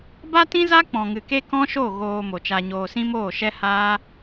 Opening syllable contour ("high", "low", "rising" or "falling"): high